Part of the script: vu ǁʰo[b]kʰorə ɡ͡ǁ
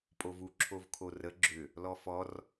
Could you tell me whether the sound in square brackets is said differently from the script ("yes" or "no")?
yes